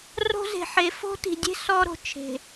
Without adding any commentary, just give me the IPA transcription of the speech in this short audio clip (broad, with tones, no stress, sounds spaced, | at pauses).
r o̤˦ z e̤˨ ħ e˨ f o̤˦ t i̤˨ dʲ e̤˦ s ɔ˦ ɾ o̤˨ t͡ʃʰ e̤˨